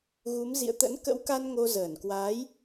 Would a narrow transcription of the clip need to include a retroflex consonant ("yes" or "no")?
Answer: no